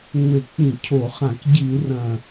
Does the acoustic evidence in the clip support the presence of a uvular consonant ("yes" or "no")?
yes